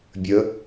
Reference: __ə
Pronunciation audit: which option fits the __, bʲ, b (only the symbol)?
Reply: bʲ